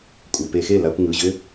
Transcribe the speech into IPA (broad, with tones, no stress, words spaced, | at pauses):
kʷʼɘ˩˧˩pe˧˩˧xe˥˩ la˧kʷŋɯ˩˧˩ ʑʏ˥